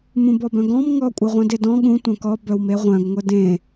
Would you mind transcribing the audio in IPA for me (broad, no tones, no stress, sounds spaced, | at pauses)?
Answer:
m ũ b ɔ b œ̃ ɡ ɔ̃ m ŋ ɔ kʷʼ ɯ ʁʷ œ̃ d e d ɔ̃ ɠ ũ tʷ œ̃ k ɔ b œ w m e ʁʷ œ̃ ɡ ŋʷ ɘ d ẽ